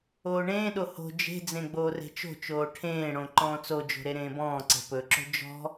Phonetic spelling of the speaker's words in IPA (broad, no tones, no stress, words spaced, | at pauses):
oːɳẽːɗo ho̤ d͡ʒe̤d͡zẽ ɡ͡boːre̤t͡ʃo̤t͡ʃoː ʈʰẽːɽõ ǃɔ̃ːt͡sod͡ʒo̤ ɾeɾẽːbɔ̃ːǀe̤ pɵǁo̤ d͡ʒɔ̤